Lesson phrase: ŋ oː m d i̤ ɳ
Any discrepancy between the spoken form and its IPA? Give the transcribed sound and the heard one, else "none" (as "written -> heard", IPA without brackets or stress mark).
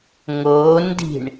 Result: m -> n